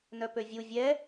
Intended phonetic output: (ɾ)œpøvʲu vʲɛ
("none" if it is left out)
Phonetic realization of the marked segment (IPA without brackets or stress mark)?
n